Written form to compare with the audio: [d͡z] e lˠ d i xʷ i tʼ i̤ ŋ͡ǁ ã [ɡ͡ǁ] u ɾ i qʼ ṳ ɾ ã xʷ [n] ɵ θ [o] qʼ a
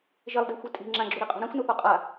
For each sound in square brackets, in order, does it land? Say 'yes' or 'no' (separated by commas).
no, yes, yes, yes